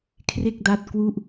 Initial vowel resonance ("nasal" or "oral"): oral